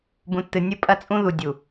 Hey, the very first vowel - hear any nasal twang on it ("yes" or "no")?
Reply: yes